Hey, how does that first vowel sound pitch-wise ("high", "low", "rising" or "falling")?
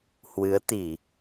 rising